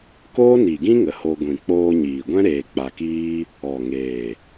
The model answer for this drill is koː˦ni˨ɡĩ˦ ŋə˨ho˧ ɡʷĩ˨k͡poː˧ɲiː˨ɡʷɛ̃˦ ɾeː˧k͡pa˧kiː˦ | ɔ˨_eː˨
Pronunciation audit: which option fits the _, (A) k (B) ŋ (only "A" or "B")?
B